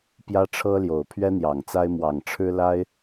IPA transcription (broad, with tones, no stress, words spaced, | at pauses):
pjä˦ʈ͡ʂʰɤ˦ljo˨˩ʊ̯ pʰɥɛ˦n̪jɑ˨˩ŋt͡sa˦ɪ̯ mwɑ˨˩ŋʈ͡ʂʰɻ̩˦la˦ɪ̯